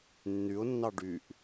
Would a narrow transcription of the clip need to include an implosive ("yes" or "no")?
no